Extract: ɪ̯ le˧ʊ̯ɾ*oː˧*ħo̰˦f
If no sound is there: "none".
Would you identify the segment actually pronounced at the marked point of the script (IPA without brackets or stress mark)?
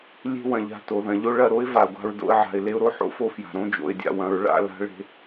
o˧